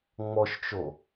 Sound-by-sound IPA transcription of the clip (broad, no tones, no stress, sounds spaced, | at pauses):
ŋ͡m ɔ ʃ t͡ʃ o